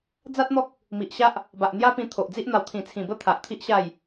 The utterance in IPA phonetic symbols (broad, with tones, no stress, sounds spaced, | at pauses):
d͡z a˦ t̚ n̪ ɔ˦ k̚ | m i˨ ʔ ɕ a˦ ʔ | b a˨ ʔ n̪ j a˦ p ĩ˧ t̪ʰ o˨ ʔ d͡z i˦ ʔ n̪ a˨˩ w t̪ʰ ĩ˨˩ t͡sʰ ĩ˨˩ b ə˦ t̪ʰ a˨ ʔ t̪ʰ i˦ ʔ ɕ a˥˧ j